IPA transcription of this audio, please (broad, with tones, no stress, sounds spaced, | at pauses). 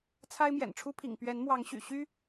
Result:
t͡sʰ a˦ ɪ̯ m j ɛ̰˨˩ n ʈ͡ʂʰ u˦ pʰ ḭ˨˩ ŋ p ɥ ɛ˨˦ n m w ɑ˨˦ ŋ ɕ y̰˨˩ ɕ y˦